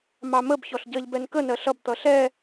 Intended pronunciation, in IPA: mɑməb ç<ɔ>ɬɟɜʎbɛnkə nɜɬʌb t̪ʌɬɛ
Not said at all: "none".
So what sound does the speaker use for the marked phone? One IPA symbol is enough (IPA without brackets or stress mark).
ɔ